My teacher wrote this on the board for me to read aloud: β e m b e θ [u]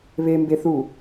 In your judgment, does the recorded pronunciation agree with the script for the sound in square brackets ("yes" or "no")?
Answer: yes